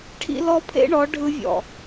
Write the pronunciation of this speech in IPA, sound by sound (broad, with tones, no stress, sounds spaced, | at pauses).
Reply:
ʈʰ ḭ˦ l ɔ˦ pʰ ḛ˦ ɳ ɔ˨˦ ɖʱ ɯ˦ vʲ ɔ̰˨